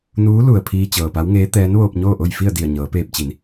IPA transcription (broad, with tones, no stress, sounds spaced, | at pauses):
n uː˧˥ l u˩ ə̯ pʰ iː˧ t͡ɕ ɤː˩ p a˧˥ w ŋ eː˧˥ t̪ ɛː˧˥ n ʋ oː˧ p̚ ɲ oː˥˨ ʔ o˥˨ j f i˥˨ ə̯ d i˧˩ ə̯ ɲ ɤː˩˧ p eː˧ p̚ t͡ɕ i˩˧ n